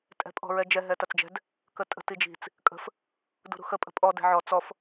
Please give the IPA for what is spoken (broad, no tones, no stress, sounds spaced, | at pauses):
tʼ ɛ̤ pʼ ɔ̤ ɹ ɛ d͡ʒ ɛ ɦ ɛ t ɐ t͡s d͡ʒ ɛ̤ d | k ə tʼ ə̤ t i d͡ʒ i̤ t͡s | kʼ ə̤ f | d ṳ ɾ ṳ x ə pʼ ə̤ pʼ ɔ d ɛ̤ ʕ ɔ t͡s ɔ f